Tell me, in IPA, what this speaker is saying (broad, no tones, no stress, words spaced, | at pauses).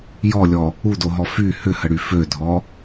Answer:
jɔlʲɔ | udoɦɔ fy hʏhəɽy fødʱɔ